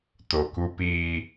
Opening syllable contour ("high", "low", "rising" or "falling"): low